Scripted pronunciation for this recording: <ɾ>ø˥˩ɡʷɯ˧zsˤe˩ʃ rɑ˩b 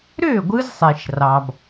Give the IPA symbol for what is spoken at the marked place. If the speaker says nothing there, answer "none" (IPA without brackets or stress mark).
ɾ